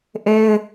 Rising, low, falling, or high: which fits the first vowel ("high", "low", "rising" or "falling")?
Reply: high